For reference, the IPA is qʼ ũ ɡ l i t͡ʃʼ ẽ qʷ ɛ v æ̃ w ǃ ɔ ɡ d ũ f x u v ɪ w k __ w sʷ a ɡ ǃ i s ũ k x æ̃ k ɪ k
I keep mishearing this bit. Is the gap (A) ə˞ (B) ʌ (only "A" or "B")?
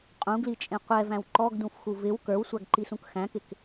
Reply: A